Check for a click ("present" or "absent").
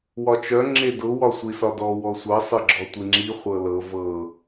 present